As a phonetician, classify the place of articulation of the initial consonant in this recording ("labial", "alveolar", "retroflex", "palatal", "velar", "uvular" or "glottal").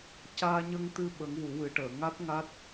palatal